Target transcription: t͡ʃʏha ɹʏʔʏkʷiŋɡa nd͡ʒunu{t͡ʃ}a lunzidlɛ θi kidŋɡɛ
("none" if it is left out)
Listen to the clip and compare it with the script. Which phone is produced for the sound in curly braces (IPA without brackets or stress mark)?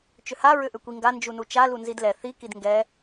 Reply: t͡ʃ